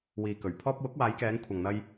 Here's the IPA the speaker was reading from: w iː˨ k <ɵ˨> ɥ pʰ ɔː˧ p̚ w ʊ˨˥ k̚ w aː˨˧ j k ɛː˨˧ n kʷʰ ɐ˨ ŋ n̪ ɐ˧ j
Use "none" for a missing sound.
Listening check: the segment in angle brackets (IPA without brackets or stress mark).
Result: ɵ˨˩